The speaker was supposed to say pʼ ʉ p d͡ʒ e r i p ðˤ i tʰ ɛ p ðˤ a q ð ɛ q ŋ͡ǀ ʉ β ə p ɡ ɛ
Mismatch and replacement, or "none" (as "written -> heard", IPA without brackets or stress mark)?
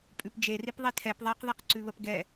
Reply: ŋ͡ǀ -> ǀ